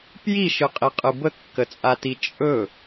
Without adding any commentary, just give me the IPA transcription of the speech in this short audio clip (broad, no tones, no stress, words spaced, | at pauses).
pjiʃɯqʼiqʼɯ bəkːət͡sʼati t͡ʃʼɵ